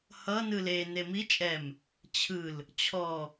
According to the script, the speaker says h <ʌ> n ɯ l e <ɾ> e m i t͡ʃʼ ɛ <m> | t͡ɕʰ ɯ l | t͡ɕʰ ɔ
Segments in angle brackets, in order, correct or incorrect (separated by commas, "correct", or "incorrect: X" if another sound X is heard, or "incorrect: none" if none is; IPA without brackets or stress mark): correct, incorrect: n, correct